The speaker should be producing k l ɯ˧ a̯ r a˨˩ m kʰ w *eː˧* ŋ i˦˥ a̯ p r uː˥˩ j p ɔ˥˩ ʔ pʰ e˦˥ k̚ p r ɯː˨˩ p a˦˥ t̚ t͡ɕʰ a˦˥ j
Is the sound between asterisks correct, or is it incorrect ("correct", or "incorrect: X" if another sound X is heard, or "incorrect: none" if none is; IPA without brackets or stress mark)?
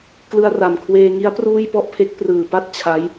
correct